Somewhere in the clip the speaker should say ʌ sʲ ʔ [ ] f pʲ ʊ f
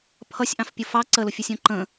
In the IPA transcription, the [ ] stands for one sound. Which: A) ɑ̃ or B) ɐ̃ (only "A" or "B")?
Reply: A